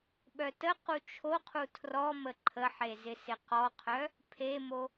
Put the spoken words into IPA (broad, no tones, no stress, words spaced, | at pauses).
ɓœtəqu t͡ʃʰoqʰu tʰrɔ məǃʰəħe zɪsɪqɔqʰœ | pʰemo